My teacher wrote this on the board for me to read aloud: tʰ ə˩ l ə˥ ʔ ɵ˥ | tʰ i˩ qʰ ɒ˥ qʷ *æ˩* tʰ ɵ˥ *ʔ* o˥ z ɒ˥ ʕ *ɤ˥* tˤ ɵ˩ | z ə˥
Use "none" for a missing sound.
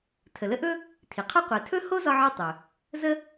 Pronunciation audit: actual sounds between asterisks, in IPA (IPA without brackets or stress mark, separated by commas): ɛ˩, h, ɤ˥